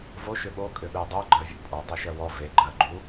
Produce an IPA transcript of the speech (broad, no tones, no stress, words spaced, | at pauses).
vo ʃʏɓo kʼʏɓedˤø ɡ͡ǃɜvʲo̰pʼɔ dˤɛʃɜwɔ ve ɡ͡ǃɜ ɡ͡ǃu